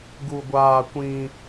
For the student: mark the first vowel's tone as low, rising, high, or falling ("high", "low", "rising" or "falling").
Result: high